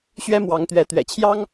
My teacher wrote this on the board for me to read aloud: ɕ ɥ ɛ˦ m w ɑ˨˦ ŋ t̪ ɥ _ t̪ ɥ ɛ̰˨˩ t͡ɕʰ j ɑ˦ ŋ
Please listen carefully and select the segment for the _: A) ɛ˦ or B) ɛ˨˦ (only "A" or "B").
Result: B